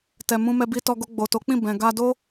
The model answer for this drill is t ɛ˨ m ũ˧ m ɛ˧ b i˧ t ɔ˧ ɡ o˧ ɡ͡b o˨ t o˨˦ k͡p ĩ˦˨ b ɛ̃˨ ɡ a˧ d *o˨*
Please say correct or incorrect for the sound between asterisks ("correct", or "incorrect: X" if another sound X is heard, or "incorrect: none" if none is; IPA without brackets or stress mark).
incorrect: o˦